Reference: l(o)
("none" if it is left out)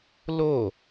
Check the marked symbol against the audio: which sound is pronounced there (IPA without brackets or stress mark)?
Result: o